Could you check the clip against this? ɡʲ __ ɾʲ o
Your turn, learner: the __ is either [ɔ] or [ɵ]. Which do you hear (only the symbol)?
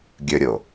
ɵ